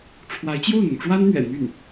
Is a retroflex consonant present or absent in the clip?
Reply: present